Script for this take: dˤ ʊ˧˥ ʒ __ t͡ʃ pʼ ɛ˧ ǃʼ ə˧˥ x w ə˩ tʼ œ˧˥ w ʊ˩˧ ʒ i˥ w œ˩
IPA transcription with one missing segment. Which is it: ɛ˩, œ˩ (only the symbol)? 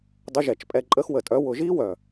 ɛ˩